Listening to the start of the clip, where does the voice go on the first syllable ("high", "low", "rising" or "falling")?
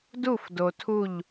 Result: falling